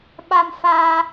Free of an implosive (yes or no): no